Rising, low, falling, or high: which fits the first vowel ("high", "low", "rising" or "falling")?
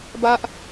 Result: high